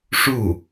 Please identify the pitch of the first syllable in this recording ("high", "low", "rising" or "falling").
falling